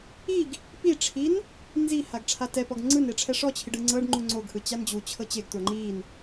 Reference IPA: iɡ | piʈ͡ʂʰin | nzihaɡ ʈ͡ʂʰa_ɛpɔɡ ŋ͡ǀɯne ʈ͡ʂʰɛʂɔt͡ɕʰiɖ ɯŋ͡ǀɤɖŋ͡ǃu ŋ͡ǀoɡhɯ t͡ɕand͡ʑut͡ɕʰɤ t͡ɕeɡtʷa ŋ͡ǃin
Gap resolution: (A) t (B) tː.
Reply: A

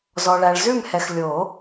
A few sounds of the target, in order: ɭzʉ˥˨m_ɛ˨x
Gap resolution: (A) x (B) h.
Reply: B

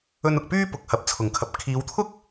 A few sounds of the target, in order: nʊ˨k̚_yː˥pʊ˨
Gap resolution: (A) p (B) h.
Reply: A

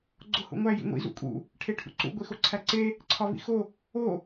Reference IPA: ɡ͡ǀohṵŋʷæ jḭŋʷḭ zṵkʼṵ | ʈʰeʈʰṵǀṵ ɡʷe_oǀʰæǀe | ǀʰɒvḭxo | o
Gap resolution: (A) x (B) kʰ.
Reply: A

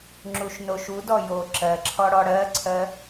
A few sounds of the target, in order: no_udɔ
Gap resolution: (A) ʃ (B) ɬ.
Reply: A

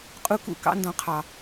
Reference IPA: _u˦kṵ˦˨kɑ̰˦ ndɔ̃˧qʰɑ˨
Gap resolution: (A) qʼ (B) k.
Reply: A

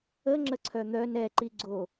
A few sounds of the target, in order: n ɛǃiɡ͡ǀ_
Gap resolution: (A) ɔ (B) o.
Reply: B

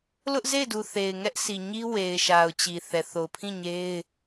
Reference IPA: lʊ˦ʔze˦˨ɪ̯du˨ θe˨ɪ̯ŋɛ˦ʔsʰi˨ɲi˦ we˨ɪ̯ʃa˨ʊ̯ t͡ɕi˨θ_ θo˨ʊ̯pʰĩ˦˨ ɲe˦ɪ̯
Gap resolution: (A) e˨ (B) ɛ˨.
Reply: B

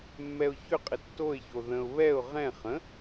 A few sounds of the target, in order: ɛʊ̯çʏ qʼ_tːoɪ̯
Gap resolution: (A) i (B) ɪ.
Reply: B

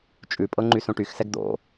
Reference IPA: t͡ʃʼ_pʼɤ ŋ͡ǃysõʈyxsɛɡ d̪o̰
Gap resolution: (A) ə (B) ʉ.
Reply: B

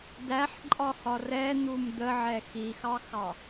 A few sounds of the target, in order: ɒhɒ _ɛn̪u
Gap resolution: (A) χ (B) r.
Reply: B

